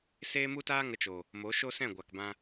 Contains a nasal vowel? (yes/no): yes